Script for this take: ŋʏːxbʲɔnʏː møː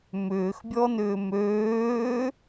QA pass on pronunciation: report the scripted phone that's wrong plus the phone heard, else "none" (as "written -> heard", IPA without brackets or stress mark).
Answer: ŋ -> m